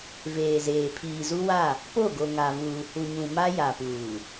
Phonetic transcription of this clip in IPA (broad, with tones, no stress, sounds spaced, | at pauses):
v eː˨ z eː˨ pʰ iː˨ z u˦ w a˦˨ | p o˦˨ ɡ o˨ ŋ a˨ v uː˨ h u˨ ɲ ũ˨ m a˦ j a˨ p uː˨